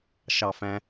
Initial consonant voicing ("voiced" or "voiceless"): voiceless